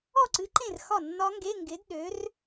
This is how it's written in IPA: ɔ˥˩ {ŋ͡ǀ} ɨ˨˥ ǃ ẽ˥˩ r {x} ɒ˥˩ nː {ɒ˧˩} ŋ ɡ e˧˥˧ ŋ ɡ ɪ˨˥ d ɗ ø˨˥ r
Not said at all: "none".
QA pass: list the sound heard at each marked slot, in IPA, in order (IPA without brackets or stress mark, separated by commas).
ǀ, x, ɒ˦˥